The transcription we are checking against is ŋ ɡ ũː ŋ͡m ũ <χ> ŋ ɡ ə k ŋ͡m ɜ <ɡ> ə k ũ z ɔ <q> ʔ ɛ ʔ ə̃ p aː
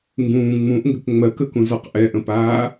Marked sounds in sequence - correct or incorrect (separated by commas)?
incorrect, incorrect, correct